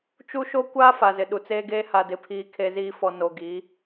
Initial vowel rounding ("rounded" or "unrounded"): rounded